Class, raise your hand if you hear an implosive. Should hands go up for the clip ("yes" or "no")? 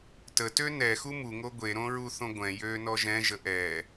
no